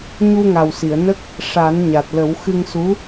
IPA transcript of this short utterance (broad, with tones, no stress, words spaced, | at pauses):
ɲu˧ŋa˨˩wsi˨˩˨ə̯ nə˦˥k̚ | ʂa˨˩˦nɲa˨˩t̚lə˨˩˦w xɨ˧ŋsu˧˥